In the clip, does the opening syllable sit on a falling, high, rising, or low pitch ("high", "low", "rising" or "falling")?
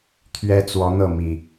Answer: high